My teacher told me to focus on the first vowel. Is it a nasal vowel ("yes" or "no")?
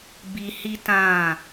no